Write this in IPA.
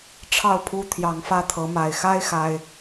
ʈ͡ʂʰ ɑ˥˨ ʊ̯ pʰ u˦ t̪ʰ j ɑ˨˦ ŋ f ä˦ t̪ʰ ɤ˨˦ m a˨˩ ɪ̯ x a˦ ɪ̯ x a˦ ɪ̯

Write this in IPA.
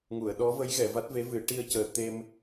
ŋ u˨˩˨ ə̯ ɗ ɔ˧˥ v ə˧˥ j ɣ ɛ˨˩˨ v a˦˥ t̚ v e˧˥ v ɨ˨˩˦ ʈ i˧ ə̯ c əː˨˩ t̪ e˧ m

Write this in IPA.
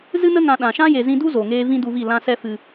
z ɨ˦ n ə˦ ŋ ã˧ ɗ ã˨ ʃ ã˦ j e˨ z ĩ˧ d u˦ z o˨ ŋ eː˧ v ĩ˦ d u˧ v i˦˨ l ã˧ s ɛ˧ f ɨ˨

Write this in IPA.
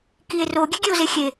k i e̯ r o ɡʲ e ɡʲ e o̯ z e xʲ e

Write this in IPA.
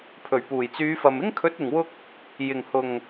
pʰ ɵ˨˩ ɥ p uː˨˩ j t͡s yː˨˧ f ɐ˨ m ɪ˥ ŋ kʰ ɵ˨˥ t̚ ɪ˨˩ ŋ w ʊ˧ k̚ | j ɪ˨˩ ŋ h ʊ˨˩ ŋ

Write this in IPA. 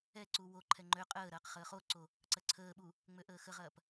ɛ ǀ u w o ǃʰ ɛ ŋ͡ǃ ø qʼ əː ɾ ɐː q χ əː χ o ǀ o | ǀ ɐ ǀʰ əː ɓ u | ŋ͡m ø ʔ əː x ə ʁ ɐː p

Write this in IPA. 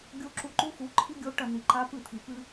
ɡʲ o˦ ǁ u˧ ǃ u˦ x u˨˦ ǃʰ i˦ ɡʲ o˦ ʈ ɐ˦˨ n̪ i˨ ǃ a˦ p ɨ˦˨ t̪ʰ i˨ p ɨ˧

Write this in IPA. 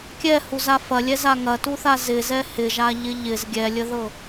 kʲ ɛ h u z a f ɐ lʲ ɛ z a ŋ ɐ t u θ a z ɪ z ɛ h ɪ ʒ a ʎ ɪ ʎ ɪ z ɡʲ ɛ lʲ ə ð ɤ

